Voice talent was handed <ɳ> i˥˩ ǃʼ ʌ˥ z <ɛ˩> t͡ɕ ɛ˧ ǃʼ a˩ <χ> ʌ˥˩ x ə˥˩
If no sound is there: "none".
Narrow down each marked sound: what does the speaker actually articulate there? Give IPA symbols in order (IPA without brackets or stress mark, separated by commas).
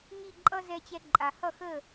ŋ, ɛ˧, h